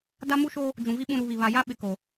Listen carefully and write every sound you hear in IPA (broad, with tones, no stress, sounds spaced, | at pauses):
d a˦ m u˦ ʃ oː˦ | d͡ʒ ũ˨ v i˦ ɓ ũ˦ ɾ u˨˦ β i˨ β a˨ j a˦ ɓ ɪ˨ k o˨